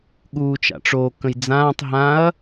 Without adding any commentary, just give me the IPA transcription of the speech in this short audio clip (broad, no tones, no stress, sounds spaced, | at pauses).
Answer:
ɠ uː t͡ʃ a̰ ʈ͡ʂ o k ə̃ j d͡z ãː tˤ ɦ ã ɐ̯